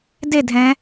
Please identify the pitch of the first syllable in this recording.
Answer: falling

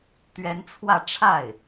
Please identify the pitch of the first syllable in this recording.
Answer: rising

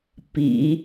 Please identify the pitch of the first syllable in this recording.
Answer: low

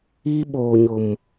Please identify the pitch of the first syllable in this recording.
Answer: high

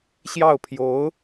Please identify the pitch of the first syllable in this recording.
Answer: falling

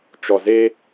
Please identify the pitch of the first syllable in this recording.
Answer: low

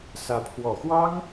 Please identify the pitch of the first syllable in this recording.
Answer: rising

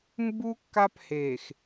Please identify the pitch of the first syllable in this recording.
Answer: high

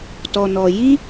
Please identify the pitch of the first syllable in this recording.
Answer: low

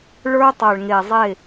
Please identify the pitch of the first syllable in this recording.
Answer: high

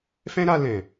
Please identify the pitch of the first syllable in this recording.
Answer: high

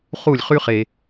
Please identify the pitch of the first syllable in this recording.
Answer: falling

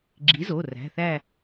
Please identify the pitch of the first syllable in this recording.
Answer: rising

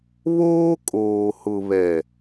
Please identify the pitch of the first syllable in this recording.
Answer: high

